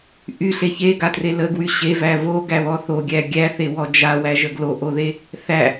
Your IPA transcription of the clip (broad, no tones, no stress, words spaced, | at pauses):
ʔyɬe çeɡatre ləɡwy ɕevæ voɡæβɔ θoɡʲæ ɡʲæθewɔ d͡ʒawæʒə ɡloʔoðe | θæ